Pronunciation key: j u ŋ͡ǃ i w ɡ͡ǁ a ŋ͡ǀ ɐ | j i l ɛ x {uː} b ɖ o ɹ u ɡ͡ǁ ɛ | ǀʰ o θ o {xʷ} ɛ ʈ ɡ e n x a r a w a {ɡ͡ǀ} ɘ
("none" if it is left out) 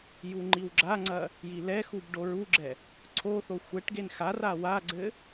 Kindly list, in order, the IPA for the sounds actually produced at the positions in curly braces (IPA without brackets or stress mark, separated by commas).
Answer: u, xʷ, ɡ͡ǀ